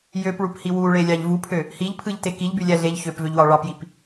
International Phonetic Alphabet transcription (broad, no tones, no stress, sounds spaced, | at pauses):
j ø p ɭ u p h i w u ɭ e lʲ ɑ ʎ v u pʰ ø | h i ʎ pʰ ɯ ʎ t e k i ʎ b y lʲ æ ɮ e ʎ ç ø p v ø ʎ w ɑ ɭ ɑ p j i p